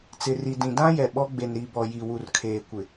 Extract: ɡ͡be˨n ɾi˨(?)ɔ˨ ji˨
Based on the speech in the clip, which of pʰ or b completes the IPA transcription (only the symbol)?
b